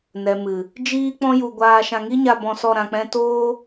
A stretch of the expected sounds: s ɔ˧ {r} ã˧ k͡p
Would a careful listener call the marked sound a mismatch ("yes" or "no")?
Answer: yes